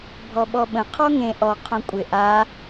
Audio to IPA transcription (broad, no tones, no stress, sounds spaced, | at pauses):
bʱ ɔ ɓ ɔ ɓ ə̃ qʰ ɔ ŋ ẽ ʔ ɔ qʰ õ kʷʼ ɪ ʔ a